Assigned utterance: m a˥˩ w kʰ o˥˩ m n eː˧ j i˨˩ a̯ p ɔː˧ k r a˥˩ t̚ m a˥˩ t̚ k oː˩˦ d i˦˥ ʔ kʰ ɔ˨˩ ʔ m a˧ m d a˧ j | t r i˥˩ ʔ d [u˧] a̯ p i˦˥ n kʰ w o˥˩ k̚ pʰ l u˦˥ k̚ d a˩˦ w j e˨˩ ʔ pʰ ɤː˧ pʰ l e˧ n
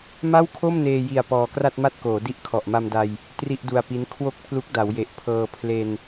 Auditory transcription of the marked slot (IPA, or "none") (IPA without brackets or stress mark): u˧